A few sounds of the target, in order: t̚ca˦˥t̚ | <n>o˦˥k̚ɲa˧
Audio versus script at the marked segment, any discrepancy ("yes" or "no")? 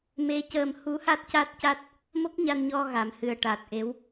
yes